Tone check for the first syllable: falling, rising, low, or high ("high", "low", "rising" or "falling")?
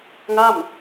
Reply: falling